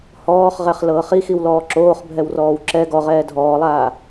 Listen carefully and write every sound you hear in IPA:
hɔːχʁɛχlɤːχ ixiwlɔː ǁoːχbʱɛwrɔːw ǁɛ ɡɔʁɛː dʱɔːlˠaː

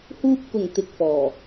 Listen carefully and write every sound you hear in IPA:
huː˧p̚kʊ˨˩ŋ t̪ɪ˨k̚fɔː˨˩

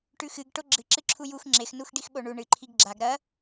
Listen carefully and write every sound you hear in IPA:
ʈʉxɨɡ ʈoɡ͡ǁɨ ǁɨǁʰujux ŋ͡ǁex nuxɖixɓoɳu ɳɨ ǃʰiɡɡ͡ǁaɡ ɾɐ

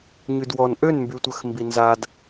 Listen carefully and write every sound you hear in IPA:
ɲydwɔn ʔønmbytʷœx mbinzad

